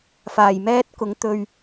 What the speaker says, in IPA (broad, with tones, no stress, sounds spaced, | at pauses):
f aː˨˩ j m ɛː˥ t̚ k ʊ˨˥ ŋ t̪ ɵ˧ ɥ